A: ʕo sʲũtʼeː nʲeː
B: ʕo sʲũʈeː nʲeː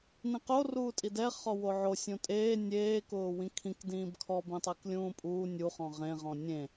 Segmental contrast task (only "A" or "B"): A